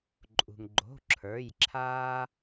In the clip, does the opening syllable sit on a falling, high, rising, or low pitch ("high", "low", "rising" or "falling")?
low